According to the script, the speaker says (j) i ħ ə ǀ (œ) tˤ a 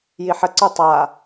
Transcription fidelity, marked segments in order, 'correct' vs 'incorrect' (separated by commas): correct, correct